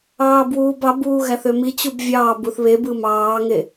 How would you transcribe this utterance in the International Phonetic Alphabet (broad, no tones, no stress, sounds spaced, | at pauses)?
ɑː b w uː b ɑ b uː ɣ æ θ ø m i t͡ɕ u b vʲ ɑː b u θ β e b ɯ m ɑː ŋ e